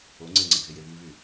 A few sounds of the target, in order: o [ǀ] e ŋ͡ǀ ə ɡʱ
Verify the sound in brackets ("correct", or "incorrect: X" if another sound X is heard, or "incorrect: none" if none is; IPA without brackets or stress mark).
incorrect: ŋ͡ǀ